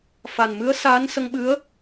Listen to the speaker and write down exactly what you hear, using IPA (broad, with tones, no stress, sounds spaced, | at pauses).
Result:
f a˨˩ n m ɨ˧˥ ə̯ s aː˧˥ n s ə˧ ŋ ɓ ɨ˧˥ ə̯